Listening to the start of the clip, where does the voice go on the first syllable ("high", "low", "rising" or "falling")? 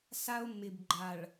high